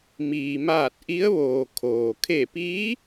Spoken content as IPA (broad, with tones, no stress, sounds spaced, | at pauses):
m iː˩ m aː˧˩ t̚ ʔ i˧˥ ə̯ ʋ oː˩ kʰ oː˩ kʰ e˧˩ p iː˧˥